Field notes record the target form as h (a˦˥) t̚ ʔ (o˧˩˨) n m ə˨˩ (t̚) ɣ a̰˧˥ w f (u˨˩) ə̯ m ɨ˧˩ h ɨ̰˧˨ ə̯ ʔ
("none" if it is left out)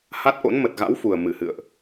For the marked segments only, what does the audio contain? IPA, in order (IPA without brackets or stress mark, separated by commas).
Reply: a˦˥, o̰˧˥, t̚, u˨˩